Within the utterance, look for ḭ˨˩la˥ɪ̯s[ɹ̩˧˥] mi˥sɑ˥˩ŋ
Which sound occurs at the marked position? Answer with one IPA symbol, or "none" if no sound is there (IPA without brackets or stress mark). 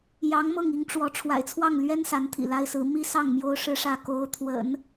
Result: ɹ̩˧˥